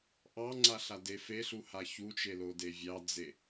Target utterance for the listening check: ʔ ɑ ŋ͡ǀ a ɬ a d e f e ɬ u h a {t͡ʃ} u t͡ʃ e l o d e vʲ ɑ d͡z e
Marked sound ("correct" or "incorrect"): incorrect